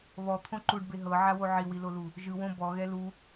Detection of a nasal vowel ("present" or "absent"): present